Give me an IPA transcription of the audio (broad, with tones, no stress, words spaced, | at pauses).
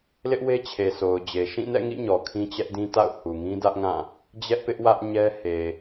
lɪ˦ʔwe˦ t͡ɕʰe˨so˨ʊ̯d͡ʑe˨ ʃĩ˦˨nɛ̰˦˨ŋḭ˦˨ ɲɔ˨kʰĩ˦t͡ɕɛ˦ʔdĩ˦ ta̰˦˨ʊ̯ hu˨ŋĩ˦dä˦ʔŋã˦˨ | d͡ʑɛ˦ʔpɪ˦ʔwä˦ʔɲɛ˦ he˨